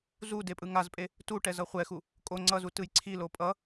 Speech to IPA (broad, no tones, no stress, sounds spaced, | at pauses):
z u d e pʼ ɯ ŋ a z pʼ e | t u ʈ ɛ z ʌ χʷ ɛ x u | kʼ o ŋ͡ǀ ʌ z u t ɯ j ǀʰ i l o pʼ ʌ